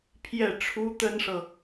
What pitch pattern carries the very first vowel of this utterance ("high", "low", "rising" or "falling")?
falling